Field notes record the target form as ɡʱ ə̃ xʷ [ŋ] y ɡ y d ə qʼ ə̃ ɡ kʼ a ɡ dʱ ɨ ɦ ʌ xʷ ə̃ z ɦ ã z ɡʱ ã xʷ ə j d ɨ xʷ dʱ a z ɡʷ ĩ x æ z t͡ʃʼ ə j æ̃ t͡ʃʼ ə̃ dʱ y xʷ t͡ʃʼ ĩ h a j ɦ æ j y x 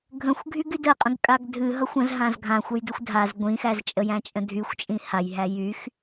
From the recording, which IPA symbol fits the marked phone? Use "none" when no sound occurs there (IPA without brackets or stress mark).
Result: ɡʱ